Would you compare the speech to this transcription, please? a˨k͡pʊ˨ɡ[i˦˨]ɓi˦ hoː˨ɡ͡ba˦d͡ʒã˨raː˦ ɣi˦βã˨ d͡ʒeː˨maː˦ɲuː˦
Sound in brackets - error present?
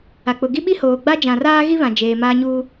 yes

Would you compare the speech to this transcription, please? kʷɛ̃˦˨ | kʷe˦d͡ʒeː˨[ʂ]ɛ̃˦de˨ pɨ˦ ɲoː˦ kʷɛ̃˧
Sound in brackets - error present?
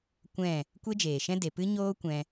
yes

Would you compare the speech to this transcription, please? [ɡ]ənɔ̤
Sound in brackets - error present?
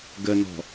no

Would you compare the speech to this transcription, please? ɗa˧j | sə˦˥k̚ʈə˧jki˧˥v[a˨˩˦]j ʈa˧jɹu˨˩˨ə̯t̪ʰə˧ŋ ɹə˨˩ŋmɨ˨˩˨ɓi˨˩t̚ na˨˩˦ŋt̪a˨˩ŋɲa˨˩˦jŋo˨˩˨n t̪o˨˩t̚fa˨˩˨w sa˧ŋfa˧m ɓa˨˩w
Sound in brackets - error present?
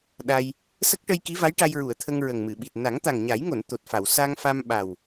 yes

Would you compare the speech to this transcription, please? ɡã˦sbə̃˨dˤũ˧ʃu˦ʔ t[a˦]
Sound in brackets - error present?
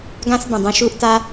no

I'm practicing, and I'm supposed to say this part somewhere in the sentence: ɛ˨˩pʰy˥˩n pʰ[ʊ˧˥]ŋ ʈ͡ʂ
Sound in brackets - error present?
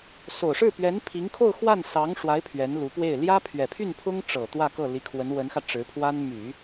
yes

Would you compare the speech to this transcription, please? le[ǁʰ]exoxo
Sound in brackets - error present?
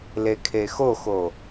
yes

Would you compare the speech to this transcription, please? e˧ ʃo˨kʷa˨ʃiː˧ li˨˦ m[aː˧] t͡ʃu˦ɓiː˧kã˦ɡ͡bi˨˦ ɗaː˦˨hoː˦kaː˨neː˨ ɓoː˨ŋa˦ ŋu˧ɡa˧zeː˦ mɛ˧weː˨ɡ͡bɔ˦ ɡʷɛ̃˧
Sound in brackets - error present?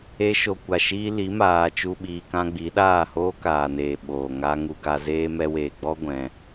no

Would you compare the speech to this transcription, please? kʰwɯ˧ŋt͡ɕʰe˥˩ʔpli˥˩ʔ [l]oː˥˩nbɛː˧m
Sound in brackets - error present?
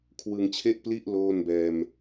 no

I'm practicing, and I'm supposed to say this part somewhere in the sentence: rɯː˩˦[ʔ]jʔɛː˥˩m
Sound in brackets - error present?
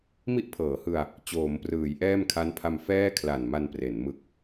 yes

